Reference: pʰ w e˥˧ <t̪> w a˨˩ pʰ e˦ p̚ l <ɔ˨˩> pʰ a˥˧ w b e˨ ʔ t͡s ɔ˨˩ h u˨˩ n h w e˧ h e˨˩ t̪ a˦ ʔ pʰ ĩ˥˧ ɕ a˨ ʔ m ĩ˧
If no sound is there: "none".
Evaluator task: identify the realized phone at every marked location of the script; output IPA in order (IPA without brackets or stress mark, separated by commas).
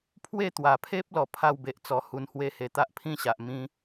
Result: t̪, ɔ˨˩